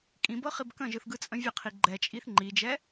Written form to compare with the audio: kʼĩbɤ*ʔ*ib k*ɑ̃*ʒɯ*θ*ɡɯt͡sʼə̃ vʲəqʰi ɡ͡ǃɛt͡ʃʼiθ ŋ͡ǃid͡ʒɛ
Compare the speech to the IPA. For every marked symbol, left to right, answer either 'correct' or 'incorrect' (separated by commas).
incorrect, incorrect, correct